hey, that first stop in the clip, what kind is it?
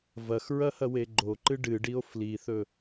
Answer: click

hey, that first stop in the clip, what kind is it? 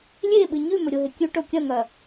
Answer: implosive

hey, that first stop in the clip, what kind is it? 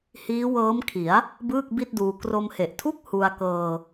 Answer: aspirated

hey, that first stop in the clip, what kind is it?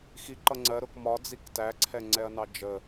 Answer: click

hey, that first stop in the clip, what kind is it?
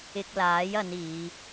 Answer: plain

